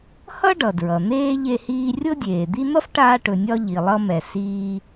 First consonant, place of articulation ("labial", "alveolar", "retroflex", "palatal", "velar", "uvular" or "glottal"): glottal